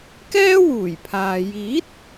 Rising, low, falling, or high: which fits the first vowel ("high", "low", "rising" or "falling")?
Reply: high